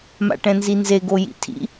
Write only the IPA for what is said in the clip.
m a̰ ʈ ɛ̃ n z i n z e ɡ o j ḭ tʰ ḭ

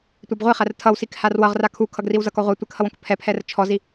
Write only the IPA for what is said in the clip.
tʷ a b ʁʷ i χ æ r tʰ ʌ w s i k h a r w ʌ ʁ r a kʰ u kʰ ʌ ɡ r i w z ʌ k ɔ ʁʷ æ tʷ ɘ k h ʌ w õ k pʰ ɛ pʰ ɛ r t͡ʃʰ ɔ z i

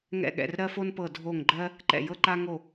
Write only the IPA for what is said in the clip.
ŋ ɛ̰˧˩ ɠ ɛ̰˧˩ r ɾ ɜ˦ f o˦ n p ɤ˧˩ dʱ o˧˩ ŋ ɡ͡ǃ ɜ˦ | ǃ ɛ̰˧˩ j ɤ˦ ǃ a˦ ŋ o˧˩

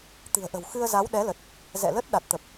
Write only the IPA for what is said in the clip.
t̪ ɨ̤˨˩ ə̯ ʔ ə̤˨˩ w x ɨ˧ ə̯ z a˨˦ w ɗ ɛ˨˦ l ə˨˩ t̚ | z ɛ̰˧˨ l ə˦˥ t̚ ɗ a˨˩ t̚ t̪ ə˨˩ p̚

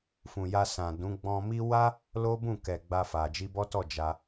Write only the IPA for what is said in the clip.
f ũ˨ j a˧ s ã˨ d ũ˨˦ ɡ͡b ɔ̃˧ m i˦ w a˦ | l o˦ b ũ˦˨ k ɛ˨ ɡ͡b a˧ f a˨ d͡ʒ i˧ b ɔ˦ t ɔ˦˨ d͡ʒ a˧

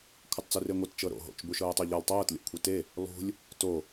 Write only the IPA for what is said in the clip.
kʷʰ ɯ tˤ t͡s u r e ŋʷ ɛ t t͡ʃ ɤ ɾ o̰ ɦ o̰ t͡ʃ b u ʃ ɤː tˤ u ʎ ɤ lˠ tˤ ɤː t lʲ o̰ kʷʰ i t e | lˠ ṳ lʲ | t o

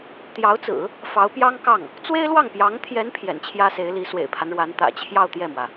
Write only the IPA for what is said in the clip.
t̪ j ɑ˧˥ ʊ̯ t͡s ɹ̩˨˩˦ | f ɑ˧˥ ʊ̯ p j ɑ˥ ŋ k ɑ˥˩ ŋ | t͡s w e˥ ɪ̯ l w ɑ˥˩ ŋ p j ɑ˧˥ ŋ t̪ʰ j ɛ˧˥ n pʰ j ɛ̰˨˩ n t͡ɕʰ j ä˥ s e˧˥ ɪ̯ l i˧˥ s w ḛ˨˩ ɪ̯ pʰ a˦ n ɻ w a˧˥ n t̪ ä̰˨˩ t͡ɕʰ j ɑ˥˧ ʊ̯ t̪ j ɛ˥˩ m w ä˩

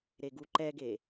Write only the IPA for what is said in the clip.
ɾ e ɡ u ǃ ɛ ɡ e

